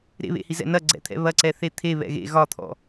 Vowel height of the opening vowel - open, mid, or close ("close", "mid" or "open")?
mid